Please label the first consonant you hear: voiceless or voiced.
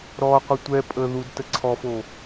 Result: voiced